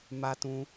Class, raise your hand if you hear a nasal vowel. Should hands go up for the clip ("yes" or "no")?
yes